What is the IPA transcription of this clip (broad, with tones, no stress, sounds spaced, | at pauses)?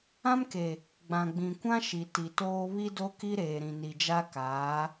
ã˦ m k e˨ | ɡ͡b ã˨ ɡ͡b ĩ˨ kʷ ã˦ ʃ i˨ t i˨ t oː˦ β i˦ d o˦ k i˦ ɾ eː˨ ɾ ĩ˨ n i˨ d͡ʒ a˦ k aː˨˦